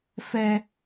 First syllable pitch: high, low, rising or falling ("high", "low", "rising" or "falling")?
high